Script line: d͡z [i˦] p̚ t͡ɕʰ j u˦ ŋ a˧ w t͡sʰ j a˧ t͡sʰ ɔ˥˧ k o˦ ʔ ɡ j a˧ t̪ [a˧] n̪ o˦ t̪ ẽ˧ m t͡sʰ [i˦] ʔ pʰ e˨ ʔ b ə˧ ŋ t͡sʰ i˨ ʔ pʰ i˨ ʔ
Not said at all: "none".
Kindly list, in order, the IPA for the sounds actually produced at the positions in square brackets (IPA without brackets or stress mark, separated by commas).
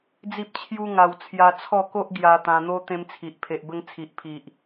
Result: i˦, ã˧, i˨